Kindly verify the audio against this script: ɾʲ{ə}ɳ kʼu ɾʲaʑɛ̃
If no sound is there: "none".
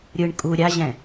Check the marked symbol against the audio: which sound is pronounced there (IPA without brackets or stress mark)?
ɯ